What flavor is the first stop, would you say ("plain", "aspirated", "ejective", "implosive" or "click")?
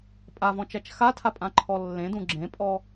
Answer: ejective